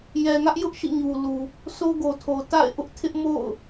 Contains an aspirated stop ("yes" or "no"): yes